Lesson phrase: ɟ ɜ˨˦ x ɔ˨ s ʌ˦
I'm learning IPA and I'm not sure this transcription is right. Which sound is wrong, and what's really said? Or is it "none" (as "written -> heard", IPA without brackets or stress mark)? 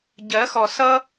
none